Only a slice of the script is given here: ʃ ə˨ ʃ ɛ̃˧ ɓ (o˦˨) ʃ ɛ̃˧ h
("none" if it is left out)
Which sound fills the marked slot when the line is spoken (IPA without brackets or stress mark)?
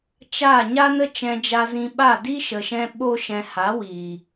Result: o˦